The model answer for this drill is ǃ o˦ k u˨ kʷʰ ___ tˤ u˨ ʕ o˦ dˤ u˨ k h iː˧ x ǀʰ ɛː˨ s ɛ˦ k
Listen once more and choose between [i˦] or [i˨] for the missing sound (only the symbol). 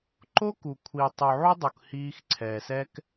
i˨